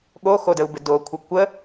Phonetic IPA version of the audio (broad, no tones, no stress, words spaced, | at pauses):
ɠoxodəu̯bɪ dokʷʰɪ kʷə